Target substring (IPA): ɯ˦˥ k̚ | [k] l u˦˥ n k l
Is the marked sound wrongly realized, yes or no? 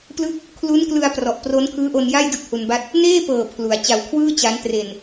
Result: yes